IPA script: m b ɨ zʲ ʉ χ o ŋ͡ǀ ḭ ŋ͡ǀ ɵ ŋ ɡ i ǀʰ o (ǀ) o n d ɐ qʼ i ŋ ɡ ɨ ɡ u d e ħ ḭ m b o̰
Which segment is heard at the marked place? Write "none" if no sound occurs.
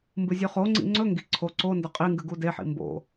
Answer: ǀ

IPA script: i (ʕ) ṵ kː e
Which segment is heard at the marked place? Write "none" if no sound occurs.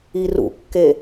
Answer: r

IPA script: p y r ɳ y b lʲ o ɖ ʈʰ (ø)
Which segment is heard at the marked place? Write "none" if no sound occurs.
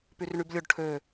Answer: ø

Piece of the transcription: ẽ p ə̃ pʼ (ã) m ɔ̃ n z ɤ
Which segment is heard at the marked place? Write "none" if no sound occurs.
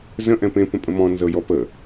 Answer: ə̃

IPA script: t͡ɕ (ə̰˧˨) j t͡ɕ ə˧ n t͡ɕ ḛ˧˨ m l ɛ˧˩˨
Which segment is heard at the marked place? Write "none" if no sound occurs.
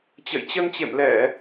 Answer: ə̰˧˨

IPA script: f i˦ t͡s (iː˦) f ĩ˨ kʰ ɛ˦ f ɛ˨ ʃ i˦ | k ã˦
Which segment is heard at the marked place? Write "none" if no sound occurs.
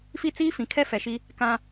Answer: iː˦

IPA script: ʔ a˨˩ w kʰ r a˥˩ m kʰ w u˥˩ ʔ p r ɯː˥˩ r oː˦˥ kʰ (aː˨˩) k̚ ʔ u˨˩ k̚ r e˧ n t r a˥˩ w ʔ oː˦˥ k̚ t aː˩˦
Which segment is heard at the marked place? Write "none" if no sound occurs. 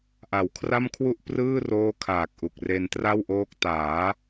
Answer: aː˨˩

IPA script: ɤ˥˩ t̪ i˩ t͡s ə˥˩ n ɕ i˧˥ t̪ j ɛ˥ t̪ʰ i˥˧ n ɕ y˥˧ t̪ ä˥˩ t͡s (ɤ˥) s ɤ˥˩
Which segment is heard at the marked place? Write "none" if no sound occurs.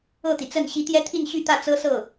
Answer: ɤ˥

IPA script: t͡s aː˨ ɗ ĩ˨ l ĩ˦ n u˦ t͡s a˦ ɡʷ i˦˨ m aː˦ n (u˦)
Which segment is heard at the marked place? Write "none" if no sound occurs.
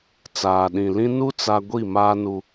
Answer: u˦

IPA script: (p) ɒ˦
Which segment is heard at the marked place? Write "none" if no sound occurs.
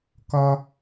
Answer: k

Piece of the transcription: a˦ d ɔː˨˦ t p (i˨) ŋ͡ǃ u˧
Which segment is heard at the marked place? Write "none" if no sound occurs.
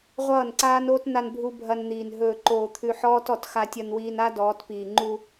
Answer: iː˨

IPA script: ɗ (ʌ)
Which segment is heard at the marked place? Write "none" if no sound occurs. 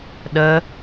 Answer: ə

